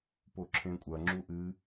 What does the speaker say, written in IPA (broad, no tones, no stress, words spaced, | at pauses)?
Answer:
poǁʰẽkʷʼɐ ŋ͡ǁuʔɨ